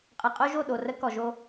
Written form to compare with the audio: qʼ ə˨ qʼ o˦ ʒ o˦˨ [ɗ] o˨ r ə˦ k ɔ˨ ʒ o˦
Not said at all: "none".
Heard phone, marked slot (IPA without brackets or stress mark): ɗ